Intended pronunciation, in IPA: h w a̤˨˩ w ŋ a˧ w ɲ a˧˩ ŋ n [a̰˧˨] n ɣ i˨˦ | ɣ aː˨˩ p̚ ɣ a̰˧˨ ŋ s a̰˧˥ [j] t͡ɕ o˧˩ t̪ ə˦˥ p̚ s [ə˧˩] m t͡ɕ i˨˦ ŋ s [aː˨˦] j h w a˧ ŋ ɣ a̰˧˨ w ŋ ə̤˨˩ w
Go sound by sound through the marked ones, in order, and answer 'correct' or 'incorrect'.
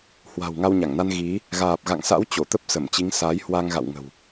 incorrect, incorrect, correct, correct

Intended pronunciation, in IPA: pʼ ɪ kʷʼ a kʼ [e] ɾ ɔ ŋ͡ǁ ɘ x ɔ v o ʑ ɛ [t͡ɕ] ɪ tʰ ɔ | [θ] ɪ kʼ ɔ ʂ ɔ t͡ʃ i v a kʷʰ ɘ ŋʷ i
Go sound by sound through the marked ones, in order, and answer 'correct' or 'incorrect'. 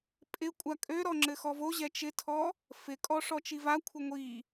incorrect, incorrect, incorrect

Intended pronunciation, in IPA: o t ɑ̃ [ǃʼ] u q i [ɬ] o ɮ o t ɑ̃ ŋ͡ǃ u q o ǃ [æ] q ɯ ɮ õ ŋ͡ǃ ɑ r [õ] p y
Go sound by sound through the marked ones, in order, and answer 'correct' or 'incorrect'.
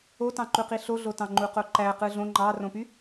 incorrect, correct, correct, correct

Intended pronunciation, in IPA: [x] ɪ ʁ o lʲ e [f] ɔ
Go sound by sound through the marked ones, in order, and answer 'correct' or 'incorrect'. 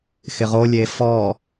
correct, correct

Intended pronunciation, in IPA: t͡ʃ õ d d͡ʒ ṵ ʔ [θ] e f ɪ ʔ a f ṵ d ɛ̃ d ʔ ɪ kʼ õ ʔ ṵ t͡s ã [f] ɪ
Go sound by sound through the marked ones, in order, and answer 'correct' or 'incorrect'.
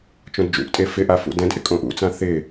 incorrect, incorrect

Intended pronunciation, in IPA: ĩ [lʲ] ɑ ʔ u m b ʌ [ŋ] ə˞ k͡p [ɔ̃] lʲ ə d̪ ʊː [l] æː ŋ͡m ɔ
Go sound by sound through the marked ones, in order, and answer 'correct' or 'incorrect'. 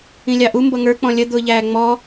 correct, correct, correct, incorrect

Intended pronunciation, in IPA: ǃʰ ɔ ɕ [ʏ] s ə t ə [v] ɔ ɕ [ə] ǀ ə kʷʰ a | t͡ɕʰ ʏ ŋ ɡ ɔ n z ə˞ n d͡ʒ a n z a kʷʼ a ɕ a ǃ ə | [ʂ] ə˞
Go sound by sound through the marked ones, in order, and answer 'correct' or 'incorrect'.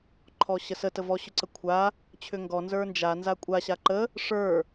incorrect, correct, incorrect, correct

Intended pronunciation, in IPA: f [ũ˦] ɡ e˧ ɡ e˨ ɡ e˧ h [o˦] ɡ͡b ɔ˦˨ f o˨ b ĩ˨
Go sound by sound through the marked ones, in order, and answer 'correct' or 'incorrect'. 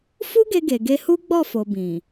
incorrect, incorrect

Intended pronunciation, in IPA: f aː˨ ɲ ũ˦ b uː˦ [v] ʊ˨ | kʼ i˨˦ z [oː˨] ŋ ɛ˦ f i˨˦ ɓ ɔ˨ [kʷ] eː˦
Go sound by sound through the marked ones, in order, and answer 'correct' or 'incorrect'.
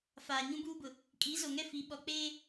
incorrect, incorrect, incorrect

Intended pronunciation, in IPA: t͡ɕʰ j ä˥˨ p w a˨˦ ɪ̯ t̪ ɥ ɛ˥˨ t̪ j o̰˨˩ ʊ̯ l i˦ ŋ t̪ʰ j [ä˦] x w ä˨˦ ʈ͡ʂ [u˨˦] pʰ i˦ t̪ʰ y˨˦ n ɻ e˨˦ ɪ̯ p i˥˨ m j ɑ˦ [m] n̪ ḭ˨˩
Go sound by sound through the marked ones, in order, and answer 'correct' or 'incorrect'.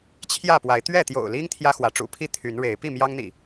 correct, incorrect, incorrect

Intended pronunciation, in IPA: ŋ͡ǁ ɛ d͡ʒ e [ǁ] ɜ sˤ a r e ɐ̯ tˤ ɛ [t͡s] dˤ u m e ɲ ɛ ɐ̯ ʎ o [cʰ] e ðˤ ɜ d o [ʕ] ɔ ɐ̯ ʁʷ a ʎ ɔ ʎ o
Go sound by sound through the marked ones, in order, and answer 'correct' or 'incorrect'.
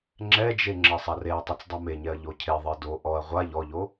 incorrect, correct, correct, incorrect

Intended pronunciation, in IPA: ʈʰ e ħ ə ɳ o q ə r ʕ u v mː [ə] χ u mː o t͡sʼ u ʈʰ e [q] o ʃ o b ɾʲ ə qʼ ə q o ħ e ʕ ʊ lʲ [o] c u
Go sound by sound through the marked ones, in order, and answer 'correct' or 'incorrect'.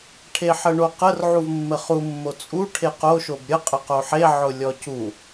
correct, correct, incorrect

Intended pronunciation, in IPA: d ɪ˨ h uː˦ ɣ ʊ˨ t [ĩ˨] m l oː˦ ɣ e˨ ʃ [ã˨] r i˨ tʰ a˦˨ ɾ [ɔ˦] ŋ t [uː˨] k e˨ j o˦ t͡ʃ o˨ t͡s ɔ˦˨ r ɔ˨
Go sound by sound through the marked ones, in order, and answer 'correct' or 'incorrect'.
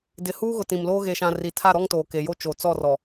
correct, correct, correct, incorrect

